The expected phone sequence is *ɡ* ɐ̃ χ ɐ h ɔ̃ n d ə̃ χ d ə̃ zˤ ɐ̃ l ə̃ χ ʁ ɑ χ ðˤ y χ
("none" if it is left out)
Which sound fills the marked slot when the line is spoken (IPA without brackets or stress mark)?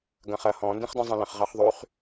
ɡ